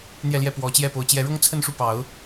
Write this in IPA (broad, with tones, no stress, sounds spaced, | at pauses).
n̪ j ɛ˥˧ l j ɛ˥˩ p w ɔ˧˥ t͡ɕ j ɛ˥˩ p o˧˥ ʊ̯ t͡ɕ j ɛ˧˥ ɻ ʊ˥ ŋ t͡sʰ ə˥˧ n ʂ u˥˩ p ɑ˧˥ ʊ̯